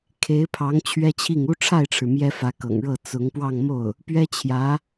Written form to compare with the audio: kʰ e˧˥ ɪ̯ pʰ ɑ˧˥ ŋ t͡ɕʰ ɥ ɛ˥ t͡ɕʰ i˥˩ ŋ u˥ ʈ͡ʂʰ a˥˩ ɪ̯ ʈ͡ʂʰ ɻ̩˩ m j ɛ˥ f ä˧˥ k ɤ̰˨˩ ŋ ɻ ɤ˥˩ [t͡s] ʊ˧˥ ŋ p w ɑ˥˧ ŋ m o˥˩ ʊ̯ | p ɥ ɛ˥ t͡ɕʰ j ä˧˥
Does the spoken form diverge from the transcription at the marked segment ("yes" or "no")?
no